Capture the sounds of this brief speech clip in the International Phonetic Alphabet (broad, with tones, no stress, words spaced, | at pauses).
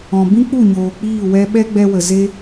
ɔ̃˨bĩ˦k͡pu˦˨ɲoː˨ k͡piː˦˨wɛ˧ ɓɛ˦ɡ͡bɛ˧wə˨ ze˦